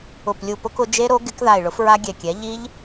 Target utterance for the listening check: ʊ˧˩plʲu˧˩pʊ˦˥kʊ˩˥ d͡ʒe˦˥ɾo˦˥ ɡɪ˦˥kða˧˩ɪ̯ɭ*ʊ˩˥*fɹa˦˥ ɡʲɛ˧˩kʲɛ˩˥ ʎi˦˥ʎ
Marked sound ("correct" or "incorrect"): correct